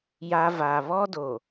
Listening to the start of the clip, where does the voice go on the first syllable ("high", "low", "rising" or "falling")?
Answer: high